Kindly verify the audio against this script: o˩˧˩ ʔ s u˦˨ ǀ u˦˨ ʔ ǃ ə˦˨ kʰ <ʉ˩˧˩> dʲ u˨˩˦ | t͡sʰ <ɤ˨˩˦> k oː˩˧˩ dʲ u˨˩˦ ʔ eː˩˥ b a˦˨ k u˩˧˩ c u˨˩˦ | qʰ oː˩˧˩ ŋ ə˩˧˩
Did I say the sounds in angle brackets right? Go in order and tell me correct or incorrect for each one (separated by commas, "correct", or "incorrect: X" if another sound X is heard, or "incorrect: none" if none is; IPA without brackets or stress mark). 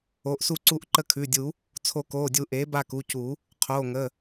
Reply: correct, incorrect: o˨˩˦